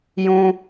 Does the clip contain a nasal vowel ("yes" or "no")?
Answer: yes